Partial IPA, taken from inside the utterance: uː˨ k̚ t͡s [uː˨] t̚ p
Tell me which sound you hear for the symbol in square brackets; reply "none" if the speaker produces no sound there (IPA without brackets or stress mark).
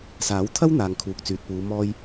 yː˨